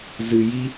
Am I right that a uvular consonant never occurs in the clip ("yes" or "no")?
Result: yes